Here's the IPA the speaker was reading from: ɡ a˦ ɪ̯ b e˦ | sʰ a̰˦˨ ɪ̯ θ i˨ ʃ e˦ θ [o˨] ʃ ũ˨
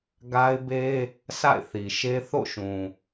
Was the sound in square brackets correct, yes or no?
no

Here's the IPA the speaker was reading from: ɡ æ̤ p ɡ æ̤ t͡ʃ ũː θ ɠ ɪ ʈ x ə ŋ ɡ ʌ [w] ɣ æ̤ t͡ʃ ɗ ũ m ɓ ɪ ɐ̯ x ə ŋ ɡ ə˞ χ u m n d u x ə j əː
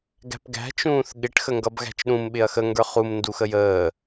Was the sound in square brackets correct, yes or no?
no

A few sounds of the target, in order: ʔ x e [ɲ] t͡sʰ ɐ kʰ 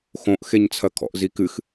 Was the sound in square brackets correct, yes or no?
yes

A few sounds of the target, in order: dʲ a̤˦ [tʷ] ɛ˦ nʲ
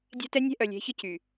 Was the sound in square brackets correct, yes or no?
no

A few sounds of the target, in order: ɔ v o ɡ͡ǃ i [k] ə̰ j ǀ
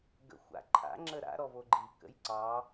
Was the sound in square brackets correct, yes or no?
yes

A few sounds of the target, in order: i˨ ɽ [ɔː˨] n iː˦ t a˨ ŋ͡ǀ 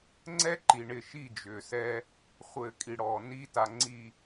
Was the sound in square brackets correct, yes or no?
yes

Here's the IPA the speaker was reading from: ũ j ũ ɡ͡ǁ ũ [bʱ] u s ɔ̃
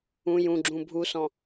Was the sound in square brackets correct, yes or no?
yes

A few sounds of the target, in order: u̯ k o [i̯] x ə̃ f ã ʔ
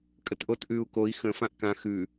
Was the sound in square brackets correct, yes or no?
yes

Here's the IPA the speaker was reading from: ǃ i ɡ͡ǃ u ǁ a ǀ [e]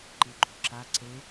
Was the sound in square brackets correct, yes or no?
yes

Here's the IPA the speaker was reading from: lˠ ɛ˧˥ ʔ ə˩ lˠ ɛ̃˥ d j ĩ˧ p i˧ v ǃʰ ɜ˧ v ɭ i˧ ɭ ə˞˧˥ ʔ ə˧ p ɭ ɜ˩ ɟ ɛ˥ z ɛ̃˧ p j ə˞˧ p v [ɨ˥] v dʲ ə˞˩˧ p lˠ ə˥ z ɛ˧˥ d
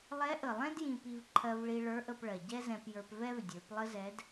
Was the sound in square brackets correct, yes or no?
no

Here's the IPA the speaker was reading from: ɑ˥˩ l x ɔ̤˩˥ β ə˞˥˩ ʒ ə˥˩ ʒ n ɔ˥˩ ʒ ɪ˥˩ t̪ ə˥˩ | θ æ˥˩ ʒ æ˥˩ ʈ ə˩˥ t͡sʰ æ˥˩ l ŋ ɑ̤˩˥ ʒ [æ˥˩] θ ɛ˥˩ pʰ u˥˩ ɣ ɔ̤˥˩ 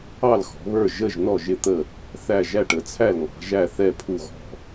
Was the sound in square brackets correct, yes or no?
yes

